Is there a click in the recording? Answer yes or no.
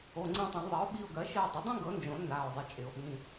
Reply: yes